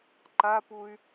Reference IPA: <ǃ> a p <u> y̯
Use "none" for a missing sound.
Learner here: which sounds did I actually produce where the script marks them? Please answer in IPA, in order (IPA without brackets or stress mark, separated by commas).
ǃ, u